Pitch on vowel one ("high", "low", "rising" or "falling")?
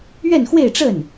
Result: falling